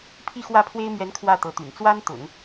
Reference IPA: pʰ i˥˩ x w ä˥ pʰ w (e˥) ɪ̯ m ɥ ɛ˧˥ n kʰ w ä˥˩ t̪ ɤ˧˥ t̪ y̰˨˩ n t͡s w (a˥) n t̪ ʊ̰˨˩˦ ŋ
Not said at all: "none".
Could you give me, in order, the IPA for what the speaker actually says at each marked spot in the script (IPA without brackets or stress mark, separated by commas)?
e˥, a˥